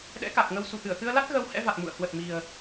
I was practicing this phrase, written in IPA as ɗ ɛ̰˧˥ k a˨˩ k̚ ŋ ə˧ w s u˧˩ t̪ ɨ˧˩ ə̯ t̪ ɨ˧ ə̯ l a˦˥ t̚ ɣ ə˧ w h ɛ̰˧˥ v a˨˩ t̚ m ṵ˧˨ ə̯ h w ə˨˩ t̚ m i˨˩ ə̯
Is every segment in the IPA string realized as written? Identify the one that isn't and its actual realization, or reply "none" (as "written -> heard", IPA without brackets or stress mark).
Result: none